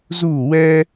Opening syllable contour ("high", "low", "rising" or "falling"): falling